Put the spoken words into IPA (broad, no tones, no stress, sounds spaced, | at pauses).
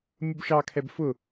mʲ ʊ b ʃ ɑ kʰ ɛ b f ʊ